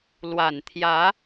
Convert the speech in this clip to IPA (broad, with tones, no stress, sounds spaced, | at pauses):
l w a˨˩ n t̪ʰ j ä˧˥